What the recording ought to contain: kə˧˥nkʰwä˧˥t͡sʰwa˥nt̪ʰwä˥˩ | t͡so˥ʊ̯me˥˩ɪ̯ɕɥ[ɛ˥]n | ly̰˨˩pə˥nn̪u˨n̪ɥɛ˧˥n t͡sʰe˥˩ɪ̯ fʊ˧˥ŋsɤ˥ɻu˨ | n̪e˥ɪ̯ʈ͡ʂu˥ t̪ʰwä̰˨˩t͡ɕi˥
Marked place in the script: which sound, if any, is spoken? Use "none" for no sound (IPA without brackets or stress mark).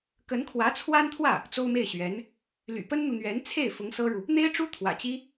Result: ɛ˧˥